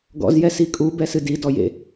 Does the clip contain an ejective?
yes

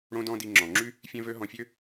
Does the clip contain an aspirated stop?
no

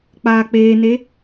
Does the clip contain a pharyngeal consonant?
no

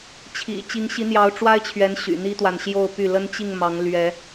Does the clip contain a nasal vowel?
no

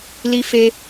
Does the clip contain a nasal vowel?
no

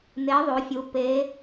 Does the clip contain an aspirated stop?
no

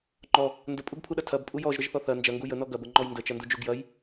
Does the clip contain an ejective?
yes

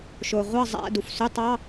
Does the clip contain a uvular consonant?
yes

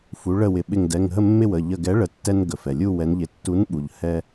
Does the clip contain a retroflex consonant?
yes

